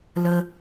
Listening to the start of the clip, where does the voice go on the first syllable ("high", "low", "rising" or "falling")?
low